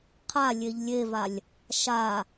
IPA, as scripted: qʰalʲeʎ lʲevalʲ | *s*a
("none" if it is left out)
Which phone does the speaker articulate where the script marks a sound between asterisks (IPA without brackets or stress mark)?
ʃ